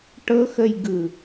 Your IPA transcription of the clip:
ʈ ɤ x ə j ɡ ɯ

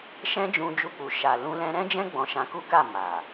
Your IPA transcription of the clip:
ʃ ɛ̃˦ d͡ʒ ũ˧ d͡ʒ u˧ k͡p u˨ ʃ a˨ l ũ˧ l ɛ̃˧ ɾ ɛ̃˦ d͡ʒ ɛ̃˦ ɡ͡b ɔ̃˧ ʃ ã˧ k u˦ k a˦˨ m a˨

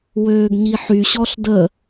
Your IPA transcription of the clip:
w øː ɡ ɲ i ħ y ɕ ɔ ɬ d ə

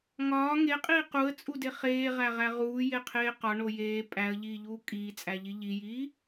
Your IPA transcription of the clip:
ŋ ɒː ŋ e qʼ iː q u ə̯ t͡sʼ u d e χ eː ʁ æ ʁ æ ʁ uː j e qʰ eː q ɒ ɳ o j eː pʼ æ ə̯ ʎ iː ʎ uː kʼ iː t͡sʼ æ ʎ i ʎ i j iː

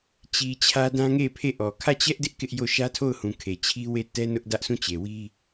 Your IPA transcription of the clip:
t͡ɕ i˨ t͡ɕʰ ä˦ d ã˦ ŋ e˦˨ pʰ e˦˨ ʔ ɔ˨ kʰ ä˦˨ t͡ɕ ɛ˦ ʔ d ɪ˦ ʔ k ɪ˦ ʔ j o˦˨ ʃ ä˦ tʰ o˦˨ ʊ̯ h ũ˨ kʰ e˨ t͡ɕʰ i˦ w e˦˨ t ɛ˦ n ʊ˦ ʔ d ä˦ ʔ sʰ ũ˦˨ t͡ɕ e˨ w i˦

